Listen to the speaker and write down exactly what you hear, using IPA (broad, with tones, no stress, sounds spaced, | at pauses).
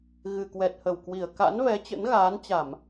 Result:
ɣ ɨ˨˩ k w ɛ˨˩ t̚ h ə˧˩ w k w i˧˩ ə̯ k a̰˧˥ n v ɛ˨˦ t͡ɕ ə̰˧˥ n ɣ aː˨˦ n t͡ɕ a˧˩˨ m